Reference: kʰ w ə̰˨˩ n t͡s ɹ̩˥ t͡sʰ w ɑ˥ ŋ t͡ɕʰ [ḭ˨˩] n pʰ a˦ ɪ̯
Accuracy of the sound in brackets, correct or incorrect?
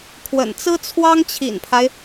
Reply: correct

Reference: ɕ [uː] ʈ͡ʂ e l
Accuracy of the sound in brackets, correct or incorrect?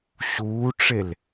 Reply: correct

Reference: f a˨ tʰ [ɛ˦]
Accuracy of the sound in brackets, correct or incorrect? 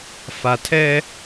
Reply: correct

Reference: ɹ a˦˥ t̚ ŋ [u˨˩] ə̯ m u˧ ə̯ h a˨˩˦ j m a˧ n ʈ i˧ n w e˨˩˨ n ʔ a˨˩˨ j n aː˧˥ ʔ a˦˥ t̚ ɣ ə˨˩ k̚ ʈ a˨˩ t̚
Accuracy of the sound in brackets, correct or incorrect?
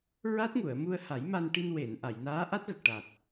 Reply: incorrect: u˨˩˨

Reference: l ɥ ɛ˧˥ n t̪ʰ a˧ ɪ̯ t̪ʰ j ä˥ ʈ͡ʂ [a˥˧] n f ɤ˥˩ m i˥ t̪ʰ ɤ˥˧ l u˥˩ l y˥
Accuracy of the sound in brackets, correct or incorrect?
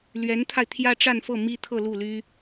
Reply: correct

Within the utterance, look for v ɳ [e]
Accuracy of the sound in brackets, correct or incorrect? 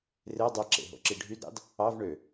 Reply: incorrect: ø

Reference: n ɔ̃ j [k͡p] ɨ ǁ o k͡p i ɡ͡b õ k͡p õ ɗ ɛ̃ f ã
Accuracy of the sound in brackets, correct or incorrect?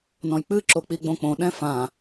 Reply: correct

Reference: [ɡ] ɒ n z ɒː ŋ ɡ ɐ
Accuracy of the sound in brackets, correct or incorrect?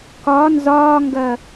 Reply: incorrect: k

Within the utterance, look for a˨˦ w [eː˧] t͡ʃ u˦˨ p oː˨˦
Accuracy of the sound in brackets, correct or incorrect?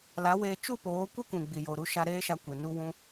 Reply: correct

